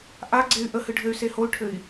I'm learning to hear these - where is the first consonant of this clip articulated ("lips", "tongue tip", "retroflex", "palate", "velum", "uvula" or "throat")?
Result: throat